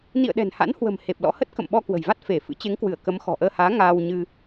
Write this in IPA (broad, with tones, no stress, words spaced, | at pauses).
nḭ˧˨ə̯ɗɛ̤˨˩nha̰˧˥nhwə̤˨˩m he˨˩p̚lɔ̰˧˥hə˦˥t̚ kə̰˧˨mɓɔ˧kwə̤˨˩jva˦˥t̚ fe˧˩ fɨ̰˧˥t͡ɕe˨˦ŋkwɨ˧˩ə̯ kə˨˦mxɔ̤˨˩ʔəː˧haː˨˦ ŋaː˧wɲɨ˧